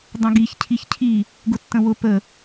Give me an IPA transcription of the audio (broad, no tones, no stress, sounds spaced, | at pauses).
dˤ ə̃ ɡ i ç cʰ i ç cʰ i | ɡ ʊ tː ə̃ w ʊ p ə